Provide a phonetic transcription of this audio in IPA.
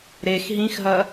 ɾ e x ɦ ĩ x ɦ ɐ

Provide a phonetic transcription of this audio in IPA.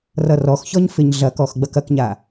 r ʌ r ɔ x ç ɔ ɲ f ɪ ɲ ɮ ɐ k ɔ x ɡ͡b ɐ k ɐ k ɲ a

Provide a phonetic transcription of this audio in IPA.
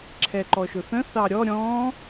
ǁʰ ɛ ǃ ɔ ʃ ʊ θ ə̃ θ ɑ ɾʲ ɔ ɾʲ ɔ̃

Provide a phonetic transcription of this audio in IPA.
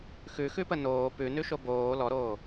x ʉ x ʉ p ə n oː p ʉ n ʉ ʃ o b oː l ɔ ɾ oː

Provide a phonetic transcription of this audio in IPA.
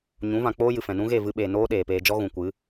ɲ ũ˨˦ v ã˨ k͡p oː˦ j ɨ˨ f ɛ̃˨ n ũ˦ ɣ e˦˨ v ɨ˧ ɓ eː˨ n oː˦ ɗ eː˨ p eː˧ d͡ʒ ɔ˦ ɣ ũ˨ kʷ ɨ˨˦

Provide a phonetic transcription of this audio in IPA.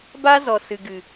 b aː˦ z ɔ˨ s ɨ˨ ɡ ɨ˨

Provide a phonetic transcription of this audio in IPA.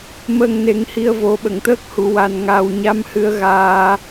m ə˨˩ ŋ n e˨˩˦ ŋ h i˧ ə̯ v o˨˩˦ ɓ ə˨˩˨ ŋ t̪ əː˦˥ k̚ h u˨˩˨ w a˨˩ n ŋ a˨˩ w ɲ a˧˥ m h ɨ˧˥ ə̯ ɣ aː˧

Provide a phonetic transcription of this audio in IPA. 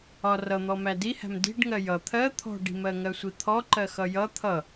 ɒ r ʌ n̪ ɔ m æ d i h æ̤ m d i̤ ɖ ŋ ɜ j ʌ t̪ʰ ɜ t̪ʰ ɔ̤ ɖ i̤ m ɜ ŋ ɜ sʷ i t̪ʰ ɔ ǃ ɜ x ʌ j ʌ t̪ʰ ʌ

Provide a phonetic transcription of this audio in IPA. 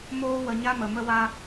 m oː˦ w ə˧ ɲ a˦ m ə˨ m ə˦ w a˦

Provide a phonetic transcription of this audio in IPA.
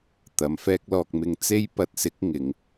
t̪ ɐ˨˧ m f ɛː˥ k̚ l ɔː˧ k̚ m ɪ˧ ŋ t͡s e˥ j p ɐ˧ t̚ s ɪ˨˥ k̚ ŋ ɪ˨˧ ŋ

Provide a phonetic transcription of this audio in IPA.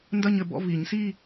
n d ɐ˥˧ ɲ ɘ˨˩˦ b ɔ̰˧˥˧ v i˨˩˦ ɲ s i˥˧

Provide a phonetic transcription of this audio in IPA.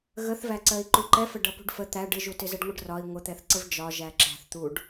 ɣ ə θ v æ ǀ ɜ i̯ ǃ u ǃ ɛ f ə ɖ ʌ p ṳ ɖ f ə t̪ æ ɖ ɪ ʒ u t ɪ z ɛ ɖ ŋʷ ə ɖ r ɒ i̯ ŋʷ ə t̪ ɛ θ ǀ ə v d͡ʒ ɒ ʒ æ ǁ æ̤ θ t̪ u ɖ

